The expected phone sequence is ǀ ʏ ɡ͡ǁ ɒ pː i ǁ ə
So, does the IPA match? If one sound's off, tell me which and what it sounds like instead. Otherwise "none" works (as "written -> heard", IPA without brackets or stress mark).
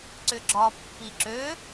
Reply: ə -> ø